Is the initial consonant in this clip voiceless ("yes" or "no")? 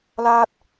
no